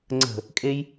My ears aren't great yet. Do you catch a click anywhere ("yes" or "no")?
yes